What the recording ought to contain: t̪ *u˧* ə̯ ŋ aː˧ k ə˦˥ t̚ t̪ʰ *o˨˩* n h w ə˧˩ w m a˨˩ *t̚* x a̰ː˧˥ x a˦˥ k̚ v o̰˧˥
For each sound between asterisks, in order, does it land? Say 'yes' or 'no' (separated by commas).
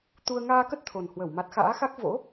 yes, yes, yes